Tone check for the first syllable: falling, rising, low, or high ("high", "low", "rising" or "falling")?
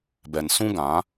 low